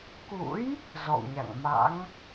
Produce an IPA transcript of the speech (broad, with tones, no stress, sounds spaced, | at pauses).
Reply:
k ṵ˧˥ j | z ɔ̰˧˨ w ɲ a̰˧˨ ŋ m a̰˧˥ ŋ